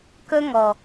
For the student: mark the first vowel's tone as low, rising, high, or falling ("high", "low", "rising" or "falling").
high